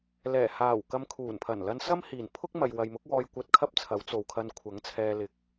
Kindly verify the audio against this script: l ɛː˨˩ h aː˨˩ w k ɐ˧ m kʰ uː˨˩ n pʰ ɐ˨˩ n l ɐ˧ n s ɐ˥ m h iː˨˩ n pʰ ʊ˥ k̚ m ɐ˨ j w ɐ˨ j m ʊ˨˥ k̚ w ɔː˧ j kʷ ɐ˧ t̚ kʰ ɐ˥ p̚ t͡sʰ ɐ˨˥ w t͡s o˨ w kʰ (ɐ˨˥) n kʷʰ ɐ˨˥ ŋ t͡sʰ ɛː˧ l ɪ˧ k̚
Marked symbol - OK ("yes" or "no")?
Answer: no